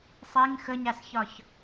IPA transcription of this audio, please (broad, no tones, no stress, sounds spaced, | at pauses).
sˤ e ŋ x ə ɲ a s ç ɒ ç